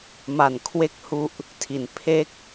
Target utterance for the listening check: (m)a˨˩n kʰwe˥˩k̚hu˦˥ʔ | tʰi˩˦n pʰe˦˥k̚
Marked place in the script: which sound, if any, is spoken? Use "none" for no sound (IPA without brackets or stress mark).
m